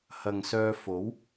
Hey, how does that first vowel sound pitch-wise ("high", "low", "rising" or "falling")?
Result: low